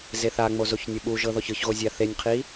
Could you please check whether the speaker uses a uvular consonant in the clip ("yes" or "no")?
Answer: yes